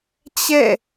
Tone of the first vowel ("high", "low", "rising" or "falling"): falling